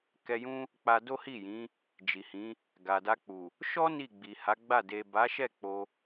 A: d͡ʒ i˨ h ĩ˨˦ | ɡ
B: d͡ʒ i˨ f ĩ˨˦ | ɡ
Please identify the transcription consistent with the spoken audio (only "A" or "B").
A